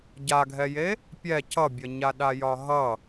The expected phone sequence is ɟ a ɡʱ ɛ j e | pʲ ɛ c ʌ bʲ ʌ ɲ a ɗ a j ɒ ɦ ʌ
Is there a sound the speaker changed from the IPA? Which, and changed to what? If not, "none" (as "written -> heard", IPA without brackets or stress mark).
none